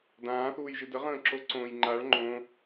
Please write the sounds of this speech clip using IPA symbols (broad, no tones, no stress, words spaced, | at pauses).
dãːθuːjʒɨ dəʁə̃ːǁoǀõːj ŋ͡ǃaɭ ŋ͡ǃõ